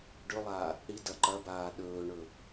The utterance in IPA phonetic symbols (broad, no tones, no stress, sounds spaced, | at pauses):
ɖ ɵ lˠ aː | ɽ i d ɐ ǃ ɐ b aː ɗ ɵː ɳ ɵ